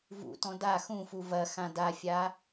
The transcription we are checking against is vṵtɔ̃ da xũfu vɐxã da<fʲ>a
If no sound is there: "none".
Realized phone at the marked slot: fʲ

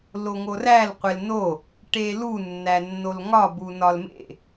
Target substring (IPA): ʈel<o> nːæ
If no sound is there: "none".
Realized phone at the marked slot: u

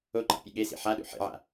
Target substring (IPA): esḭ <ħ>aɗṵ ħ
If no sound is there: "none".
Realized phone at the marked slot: ħ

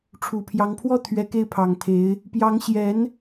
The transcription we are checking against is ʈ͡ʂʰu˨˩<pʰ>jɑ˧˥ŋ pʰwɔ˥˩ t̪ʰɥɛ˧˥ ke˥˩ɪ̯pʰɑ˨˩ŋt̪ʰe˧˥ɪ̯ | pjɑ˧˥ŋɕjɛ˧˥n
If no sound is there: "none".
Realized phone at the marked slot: pʰ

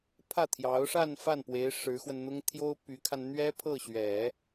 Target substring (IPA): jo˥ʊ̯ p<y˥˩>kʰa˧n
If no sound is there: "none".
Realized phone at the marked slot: y˧˥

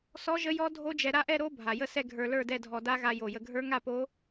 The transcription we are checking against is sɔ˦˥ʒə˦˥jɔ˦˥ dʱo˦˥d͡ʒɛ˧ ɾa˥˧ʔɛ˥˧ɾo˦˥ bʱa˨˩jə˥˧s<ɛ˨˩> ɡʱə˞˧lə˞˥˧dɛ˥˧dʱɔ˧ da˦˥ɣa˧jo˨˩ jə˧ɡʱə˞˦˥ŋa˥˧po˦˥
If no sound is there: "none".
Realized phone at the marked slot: ɛ˥˧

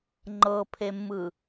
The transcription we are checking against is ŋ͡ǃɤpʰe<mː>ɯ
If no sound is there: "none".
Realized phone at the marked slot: mː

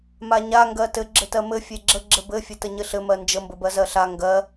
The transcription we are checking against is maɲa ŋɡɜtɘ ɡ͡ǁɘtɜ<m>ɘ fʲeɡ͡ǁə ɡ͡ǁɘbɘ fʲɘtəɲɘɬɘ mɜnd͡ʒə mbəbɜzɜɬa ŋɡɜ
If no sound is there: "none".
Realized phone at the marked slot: m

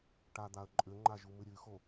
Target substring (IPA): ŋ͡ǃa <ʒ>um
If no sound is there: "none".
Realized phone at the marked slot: ʒ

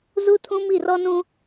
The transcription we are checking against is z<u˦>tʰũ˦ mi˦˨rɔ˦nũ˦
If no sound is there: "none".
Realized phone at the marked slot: u˦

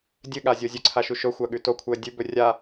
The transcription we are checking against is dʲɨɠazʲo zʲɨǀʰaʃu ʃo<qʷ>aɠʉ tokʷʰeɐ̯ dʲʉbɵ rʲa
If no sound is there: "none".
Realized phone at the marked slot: xʷ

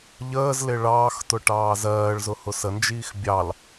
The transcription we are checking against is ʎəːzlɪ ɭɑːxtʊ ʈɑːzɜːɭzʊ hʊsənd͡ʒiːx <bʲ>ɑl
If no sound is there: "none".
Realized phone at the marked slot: bʲ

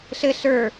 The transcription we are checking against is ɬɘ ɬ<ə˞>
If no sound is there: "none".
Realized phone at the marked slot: ə˞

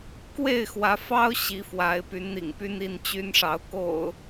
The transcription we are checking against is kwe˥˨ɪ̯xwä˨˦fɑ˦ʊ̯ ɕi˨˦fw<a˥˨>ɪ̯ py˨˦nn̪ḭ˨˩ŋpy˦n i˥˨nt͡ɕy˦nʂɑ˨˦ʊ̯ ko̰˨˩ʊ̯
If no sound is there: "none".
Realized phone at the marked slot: a˨˦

